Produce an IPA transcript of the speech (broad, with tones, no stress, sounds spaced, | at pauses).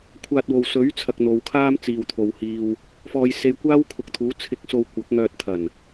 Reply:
kʷʰ aː˧ t̚ w o˨ w s ɵ˨˥ ɥ t͡sʰ ɐ˧ k̚ n̪ o˨˧ w kʰ aː˥ m t͡s iː˨ w t̪ʰ o˨ w h iː˧ w | f ɔː˧ j s e˧ j kʷ aː˥ w kʰ ʊ˨˥ k̚ t̪ʰ uː˨˥ t͡sʰ ɪ˨˥ k̚ s o˨ w kʷ ɐ˨˥ k̚ ŋ œː˧ t̚ t̪ʰ ɐ˨˩ n